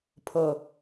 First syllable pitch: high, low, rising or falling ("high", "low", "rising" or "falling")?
low